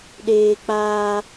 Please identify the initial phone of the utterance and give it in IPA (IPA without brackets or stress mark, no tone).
ɗ